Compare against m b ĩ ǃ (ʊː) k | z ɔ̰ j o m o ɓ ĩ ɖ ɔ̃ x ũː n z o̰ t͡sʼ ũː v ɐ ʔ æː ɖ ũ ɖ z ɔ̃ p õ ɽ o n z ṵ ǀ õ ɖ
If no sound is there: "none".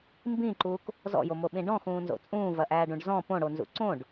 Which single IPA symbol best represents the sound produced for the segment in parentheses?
uː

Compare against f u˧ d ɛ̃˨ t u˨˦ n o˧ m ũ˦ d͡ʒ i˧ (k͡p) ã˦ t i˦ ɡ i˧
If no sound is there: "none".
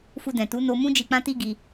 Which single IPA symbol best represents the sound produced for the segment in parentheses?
k͡p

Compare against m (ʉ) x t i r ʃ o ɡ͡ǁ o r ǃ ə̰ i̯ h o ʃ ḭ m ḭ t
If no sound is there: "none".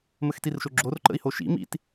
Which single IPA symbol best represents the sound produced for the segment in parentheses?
ə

